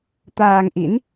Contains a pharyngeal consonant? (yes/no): no